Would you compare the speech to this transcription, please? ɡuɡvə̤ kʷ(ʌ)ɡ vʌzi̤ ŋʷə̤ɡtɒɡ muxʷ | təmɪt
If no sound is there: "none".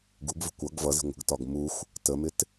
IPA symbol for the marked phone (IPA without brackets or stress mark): ʌ